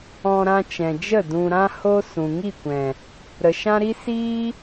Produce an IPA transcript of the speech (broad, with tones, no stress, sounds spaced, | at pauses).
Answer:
ɔ̃˧ ɾ ã˧ t͡ʃ ɛ̃˨ d͡ʒ ə˦˨ d ũ˨ ɾ ã˧ h o˦ s ũ˨ ŋ i˦˨ kʷ ɛ̃˨ | ɾ ə˨ ʃ ã˦ ɾ i˦ s iː˦